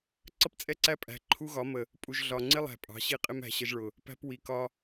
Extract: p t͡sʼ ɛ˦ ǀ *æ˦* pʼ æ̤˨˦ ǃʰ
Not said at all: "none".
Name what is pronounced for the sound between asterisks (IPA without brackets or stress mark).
æ˦